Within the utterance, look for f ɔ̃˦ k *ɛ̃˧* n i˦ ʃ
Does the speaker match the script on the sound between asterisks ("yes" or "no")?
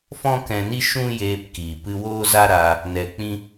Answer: yes